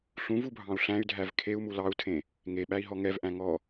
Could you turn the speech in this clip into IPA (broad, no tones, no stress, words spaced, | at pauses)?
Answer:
ɬũvubʱɑ̃u̯ ɬæ̃y̯dʱæv kʰeu̯mu lɑu̯tʰẽ | ŋeɓæi̯ɦɔ ŋɛvʔæ̃ ŋɔ